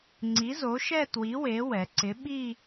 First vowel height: high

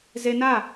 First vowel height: mid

